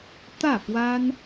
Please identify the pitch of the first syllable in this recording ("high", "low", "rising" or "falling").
falling